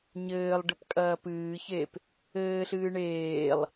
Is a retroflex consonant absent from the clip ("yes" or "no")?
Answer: no